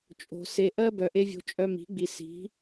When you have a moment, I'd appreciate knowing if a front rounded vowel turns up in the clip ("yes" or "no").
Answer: yes